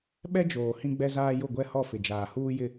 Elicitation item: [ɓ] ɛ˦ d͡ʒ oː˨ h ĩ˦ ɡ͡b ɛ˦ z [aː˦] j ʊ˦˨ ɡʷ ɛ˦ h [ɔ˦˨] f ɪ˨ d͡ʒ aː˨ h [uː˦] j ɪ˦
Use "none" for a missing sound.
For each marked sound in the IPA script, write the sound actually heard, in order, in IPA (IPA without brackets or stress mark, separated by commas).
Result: ɓ, aː˦, ɔ˦˨, uː˦